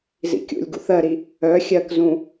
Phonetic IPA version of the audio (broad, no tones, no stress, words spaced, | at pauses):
zḭkʲṵlʲɡṵθ ɜɾi | œ xʲɜkzũ